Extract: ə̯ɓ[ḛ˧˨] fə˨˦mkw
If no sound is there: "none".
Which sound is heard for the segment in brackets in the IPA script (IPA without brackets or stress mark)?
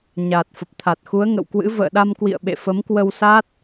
ḛ˧˨